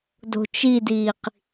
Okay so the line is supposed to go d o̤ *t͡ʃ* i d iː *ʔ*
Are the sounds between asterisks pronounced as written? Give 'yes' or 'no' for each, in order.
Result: yes, no

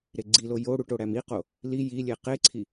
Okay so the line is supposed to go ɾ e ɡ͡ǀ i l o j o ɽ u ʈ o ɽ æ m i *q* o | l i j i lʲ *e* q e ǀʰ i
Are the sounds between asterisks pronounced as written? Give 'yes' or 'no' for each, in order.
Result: yes, yes

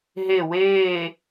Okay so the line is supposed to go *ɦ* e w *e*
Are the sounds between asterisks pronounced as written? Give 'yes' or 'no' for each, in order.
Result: yes, no

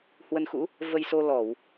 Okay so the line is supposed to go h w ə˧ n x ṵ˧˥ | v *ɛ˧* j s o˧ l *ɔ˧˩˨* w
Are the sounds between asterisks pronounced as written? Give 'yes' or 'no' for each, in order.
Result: no, yes

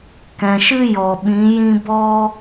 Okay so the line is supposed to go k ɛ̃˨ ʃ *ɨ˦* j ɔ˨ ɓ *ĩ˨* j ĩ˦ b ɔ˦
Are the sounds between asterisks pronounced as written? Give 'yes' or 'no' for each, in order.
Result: yes, no

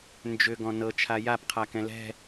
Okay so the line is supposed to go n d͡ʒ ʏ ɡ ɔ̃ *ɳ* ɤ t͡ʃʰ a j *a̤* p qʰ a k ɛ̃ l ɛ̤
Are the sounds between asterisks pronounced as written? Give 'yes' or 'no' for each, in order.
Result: no, no

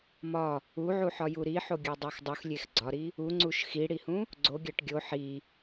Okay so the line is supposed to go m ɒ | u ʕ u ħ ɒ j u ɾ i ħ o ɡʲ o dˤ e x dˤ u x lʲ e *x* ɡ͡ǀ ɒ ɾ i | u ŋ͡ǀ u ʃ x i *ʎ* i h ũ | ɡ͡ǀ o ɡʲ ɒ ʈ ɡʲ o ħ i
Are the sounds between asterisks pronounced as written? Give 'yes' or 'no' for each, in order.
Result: yes, no

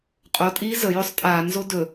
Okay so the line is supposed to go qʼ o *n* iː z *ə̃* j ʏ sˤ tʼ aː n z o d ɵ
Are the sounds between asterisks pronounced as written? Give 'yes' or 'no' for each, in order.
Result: no, no

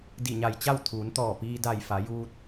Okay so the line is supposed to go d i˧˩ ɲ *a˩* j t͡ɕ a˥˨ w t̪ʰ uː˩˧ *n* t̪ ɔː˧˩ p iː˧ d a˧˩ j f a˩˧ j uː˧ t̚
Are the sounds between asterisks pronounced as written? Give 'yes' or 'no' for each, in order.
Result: no, yes

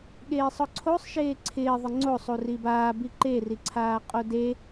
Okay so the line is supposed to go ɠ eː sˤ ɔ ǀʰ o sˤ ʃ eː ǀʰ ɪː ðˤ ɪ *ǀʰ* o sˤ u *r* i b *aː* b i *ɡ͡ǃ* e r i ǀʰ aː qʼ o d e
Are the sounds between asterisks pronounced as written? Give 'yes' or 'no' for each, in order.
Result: no, yes, yes, no

